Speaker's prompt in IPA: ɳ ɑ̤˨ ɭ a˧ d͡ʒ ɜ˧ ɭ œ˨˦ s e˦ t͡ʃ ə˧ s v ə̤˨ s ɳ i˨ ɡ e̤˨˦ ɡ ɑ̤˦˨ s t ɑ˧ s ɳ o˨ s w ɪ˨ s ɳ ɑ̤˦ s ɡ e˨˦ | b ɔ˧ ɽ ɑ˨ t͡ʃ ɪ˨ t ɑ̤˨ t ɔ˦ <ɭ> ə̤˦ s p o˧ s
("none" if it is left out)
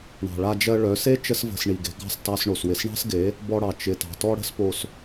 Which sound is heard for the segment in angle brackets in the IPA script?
ɽ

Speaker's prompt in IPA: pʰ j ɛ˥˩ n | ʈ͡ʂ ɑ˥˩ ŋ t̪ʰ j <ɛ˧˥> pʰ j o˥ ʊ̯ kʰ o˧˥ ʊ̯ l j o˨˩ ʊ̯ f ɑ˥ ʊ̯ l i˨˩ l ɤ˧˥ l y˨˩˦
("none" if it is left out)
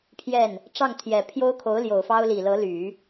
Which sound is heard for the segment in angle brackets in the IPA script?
ɛ˨˩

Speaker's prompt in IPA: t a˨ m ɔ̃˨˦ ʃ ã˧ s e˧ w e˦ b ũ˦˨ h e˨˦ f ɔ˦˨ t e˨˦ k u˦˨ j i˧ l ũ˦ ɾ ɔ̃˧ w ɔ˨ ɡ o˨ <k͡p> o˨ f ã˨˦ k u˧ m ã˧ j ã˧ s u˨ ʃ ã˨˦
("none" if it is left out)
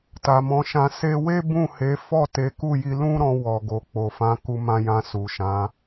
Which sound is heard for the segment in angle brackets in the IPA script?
k͡p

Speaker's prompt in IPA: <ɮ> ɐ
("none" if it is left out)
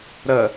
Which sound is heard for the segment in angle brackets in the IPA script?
ɾ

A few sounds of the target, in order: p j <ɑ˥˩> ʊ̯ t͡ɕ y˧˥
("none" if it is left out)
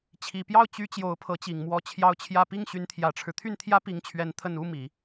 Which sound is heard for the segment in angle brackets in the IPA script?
ɑ˥˩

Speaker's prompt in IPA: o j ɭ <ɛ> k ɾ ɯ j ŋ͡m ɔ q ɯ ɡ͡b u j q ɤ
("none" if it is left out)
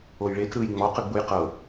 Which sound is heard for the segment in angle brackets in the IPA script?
e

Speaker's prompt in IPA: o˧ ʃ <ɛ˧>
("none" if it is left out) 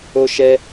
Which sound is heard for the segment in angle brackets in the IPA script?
ɛ˧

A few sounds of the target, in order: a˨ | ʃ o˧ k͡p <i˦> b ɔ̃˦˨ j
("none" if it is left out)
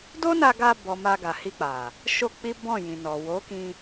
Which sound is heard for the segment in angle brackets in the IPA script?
i˦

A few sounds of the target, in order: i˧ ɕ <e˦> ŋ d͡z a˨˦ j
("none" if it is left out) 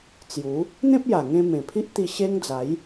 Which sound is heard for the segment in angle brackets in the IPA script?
e˦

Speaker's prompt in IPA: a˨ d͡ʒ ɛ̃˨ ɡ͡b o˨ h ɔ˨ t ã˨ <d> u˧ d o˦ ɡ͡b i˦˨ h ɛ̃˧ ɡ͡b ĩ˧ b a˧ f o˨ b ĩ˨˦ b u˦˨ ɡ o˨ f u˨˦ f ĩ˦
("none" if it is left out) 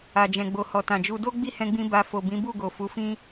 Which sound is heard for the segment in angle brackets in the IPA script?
d͡ʒ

